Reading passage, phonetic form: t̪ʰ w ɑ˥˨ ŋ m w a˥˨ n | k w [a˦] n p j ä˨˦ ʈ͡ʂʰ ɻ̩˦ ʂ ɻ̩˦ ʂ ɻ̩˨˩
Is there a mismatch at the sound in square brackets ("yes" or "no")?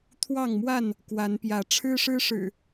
yes